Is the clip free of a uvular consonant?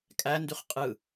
no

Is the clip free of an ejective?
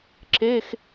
yes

